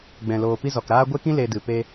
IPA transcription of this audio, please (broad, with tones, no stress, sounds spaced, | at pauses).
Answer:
ɡ͡b ɛ̃˨ l oː˨ p i˧ z ɔ˨ k ɾ aː˦ ɡʷ e˦ k ĩ˦ l e˧ d ɨ˨ p e˧